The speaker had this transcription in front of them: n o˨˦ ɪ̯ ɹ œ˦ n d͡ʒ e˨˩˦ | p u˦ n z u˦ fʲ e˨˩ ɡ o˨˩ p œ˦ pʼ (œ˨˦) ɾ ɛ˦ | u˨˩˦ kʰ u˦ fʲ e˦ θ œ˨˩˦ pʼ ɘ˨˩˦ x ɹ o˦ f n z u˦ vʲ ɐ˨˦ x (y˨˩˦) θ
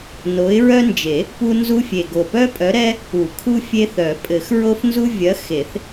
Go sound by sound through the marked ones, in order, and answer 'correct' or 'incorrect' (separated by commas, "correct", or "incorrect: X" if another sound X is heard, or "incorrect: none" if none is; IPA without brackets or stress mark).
correct, incorrect: e˨˩˦